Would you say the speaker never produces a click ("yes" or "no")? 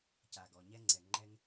no